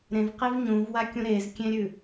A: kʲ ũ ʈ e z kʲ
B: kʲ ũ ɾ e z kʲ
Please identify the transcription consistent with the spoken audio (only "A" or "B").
B